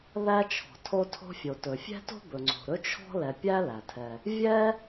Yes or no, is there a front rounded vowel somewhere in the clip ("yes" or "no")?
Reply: no